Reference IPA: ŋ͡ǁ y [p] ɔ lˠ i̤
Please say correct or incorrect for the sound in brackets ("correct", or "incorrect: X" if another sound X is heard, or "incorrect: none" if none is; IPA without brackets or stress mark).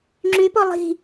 correct